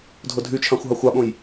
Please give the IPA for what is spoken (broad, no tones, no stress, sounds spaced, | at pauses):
dʱ o dʱ y t͡ʃʰ ɑ̃ xʷ ɦ ɑ xʷ ɑ ɓ õ j